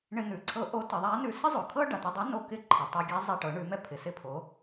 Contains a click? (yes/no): yes